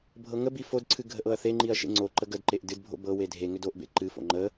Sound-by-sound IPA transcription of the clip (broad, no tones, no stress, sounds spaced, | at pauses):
bʱ ɤ ŋ ə b i f o d ǀʰ ɨ ɡʱ ə ʔ ɤ ɐ̯ θ e ŋ͡ǃ i ɐ̯ ʃ ḛ ŋ͡ǀ o ǃ ə ɡ ə d ǃ e ʔ d ɨ d bʱ o̰ b ɤ w e dʱ e ŋ ʏ d o ʔ b ḛ ǃ ɨ f o̰ ŋ͡ǃ ə